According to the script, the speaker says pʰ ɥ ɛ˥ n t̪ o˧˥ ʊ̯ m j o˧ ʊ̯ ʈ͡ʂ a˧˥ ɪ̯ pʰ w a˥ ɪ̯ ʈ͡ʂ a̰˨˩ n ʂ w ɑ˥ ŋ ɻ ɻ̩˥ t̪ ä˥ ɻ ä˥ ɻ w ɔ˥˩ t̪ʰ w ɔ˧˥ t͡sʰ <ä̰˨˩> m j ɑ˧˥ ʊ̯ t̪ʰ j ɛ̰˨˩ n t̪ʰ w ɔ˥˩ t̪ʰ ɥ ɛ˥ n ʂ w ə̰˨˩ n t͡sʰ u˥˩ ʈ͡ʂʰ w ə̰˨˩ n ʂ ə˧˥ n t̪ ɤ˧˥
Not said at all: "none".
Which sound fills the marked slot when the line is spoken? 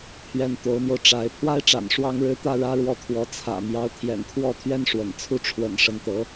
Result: ä̰˨˩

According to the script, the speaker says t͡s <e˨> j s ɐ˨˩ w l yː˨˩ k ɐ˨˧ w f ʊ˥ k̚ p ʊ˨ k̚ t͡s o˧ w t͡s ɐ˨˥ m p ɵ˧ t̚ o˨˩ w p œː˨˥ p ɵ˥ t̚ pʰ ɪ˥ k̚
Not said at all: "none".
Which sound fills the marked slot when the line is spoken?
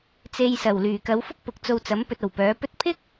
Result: e˨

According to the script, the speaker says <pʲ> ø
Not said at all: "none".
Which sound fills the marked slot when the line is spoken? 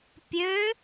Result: pʲ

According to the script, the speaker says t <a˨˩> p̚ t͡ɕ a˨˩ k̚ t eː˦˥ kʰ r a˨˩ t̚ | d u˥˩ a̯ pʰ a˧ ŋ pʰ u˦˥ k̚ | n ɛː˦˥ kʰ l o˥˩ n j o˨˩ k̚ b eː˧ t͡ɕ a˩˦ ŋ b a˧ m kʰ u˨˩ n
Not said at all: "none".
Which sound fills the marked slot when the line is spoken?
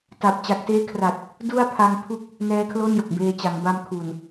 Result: a˨˩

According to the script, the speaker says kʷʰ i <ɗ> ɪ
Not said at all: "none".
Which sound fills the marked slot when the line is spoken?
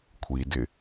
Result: d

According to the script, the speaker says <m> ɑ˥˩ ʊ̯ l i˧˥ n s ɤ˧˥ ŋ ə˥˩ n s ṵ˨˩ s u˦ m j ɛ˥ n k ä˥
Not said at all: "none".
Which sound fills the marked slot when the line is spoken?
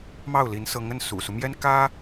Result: m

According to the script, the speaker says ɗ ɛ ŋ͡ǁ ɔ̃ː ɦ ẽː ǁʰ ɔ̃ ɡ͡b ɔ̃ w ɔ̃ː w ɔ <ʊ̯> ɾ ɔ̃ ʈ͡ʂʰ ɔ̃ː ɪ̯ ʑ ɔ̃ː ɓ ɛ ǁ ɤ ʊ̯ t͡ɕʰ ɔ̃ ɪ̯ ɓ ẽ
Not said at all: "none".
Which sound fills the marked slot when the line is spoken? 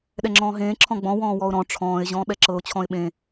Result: ʊ̯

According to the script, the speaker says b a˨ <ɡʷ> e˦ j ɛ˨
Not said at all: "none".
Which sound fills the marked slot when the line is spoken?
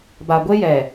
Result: ɡʷ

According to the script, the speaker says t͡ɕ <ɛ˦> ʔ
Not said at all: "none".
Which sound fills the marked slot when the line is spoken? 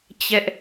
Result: ɛ˦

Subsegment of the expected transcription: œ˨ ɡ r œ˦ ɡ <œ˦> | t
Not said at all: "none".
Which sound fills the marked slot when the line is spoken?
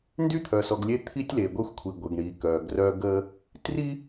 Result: ə˦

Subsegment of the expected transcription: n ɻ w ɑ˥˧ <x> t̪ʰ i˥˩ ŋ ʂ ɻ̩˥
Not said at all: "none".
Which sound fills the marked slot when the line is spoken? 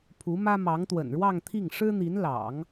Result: ŋ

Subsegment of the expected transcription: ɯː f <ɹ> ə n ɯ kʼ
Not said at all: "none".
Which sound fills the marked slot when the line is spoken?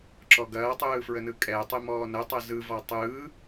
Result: ɹ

